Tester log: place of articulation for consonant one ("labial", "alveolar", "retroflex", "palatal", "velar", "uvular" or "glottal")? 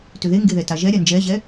alveolar